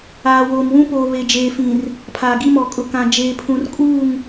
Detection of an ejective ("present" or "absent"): present